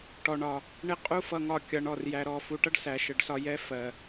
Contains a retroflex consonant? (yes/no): yes